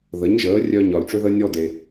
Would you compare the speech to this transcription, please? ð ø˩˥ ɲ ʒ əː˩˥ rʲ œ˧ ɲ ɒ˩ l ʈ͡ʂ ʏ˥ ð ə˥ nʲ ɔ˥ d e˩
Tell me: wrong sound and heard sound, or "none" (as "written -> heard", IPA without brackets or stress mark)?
ø˩˥ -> ə˩˥